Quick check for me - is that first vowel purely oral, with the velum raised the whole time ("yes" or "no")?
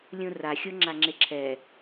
no